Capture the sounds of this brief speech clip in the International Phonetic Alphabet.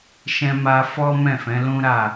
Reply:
ʃ ɛ̃˧ m a˧ f ɔ˦ m ɛ̃˦˨ f ɛ̃˨˦ l ũ˦ ɾ a˦˨

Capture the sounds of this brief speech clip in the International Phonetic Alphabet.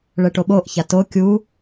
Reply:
ɭ ɛ ʈ o ɓ o ʔ ç a t o kʲ u

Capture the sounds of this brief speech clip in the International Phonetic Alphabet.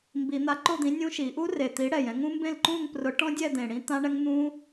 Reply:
m b i˨˩˦ n̪ a˨˥ ǃ o˥˨ d̪ ĩ˨˥ nʲ ũ˦˥ ʃ i˨˩˦ ʔ u˦˥ r e˨˩ t̪ i˨˥ ɽ ɛ˨˩ j ɛ̃˥˨ ŋ ũ˦˥ m b ẽ˥˨ l ǃ ũ˥˨ ŋ p r ʊ˨˥ ʈ ɔ̃˦˥ dʲ ɛ˥˨ d̪ ẽ˨˩ ɽ ĩ˦˥ t̪ ã˦˥ ɳ ɛ˦˥ ŋ n̪ ũ˦˥

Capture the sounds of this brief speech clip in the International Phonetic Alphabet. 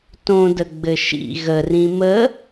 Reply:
t õ d ə ɡ͡b ɘ ʃ ḭ ɣ ə r ĩ m ə

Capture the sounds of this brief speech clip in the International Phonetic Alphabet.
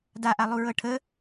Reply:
d a ʔ a lˠ u ɹ ɤ ʈʰ ə

